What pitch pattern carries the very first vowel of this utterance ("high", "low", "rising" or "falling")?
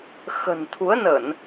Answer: low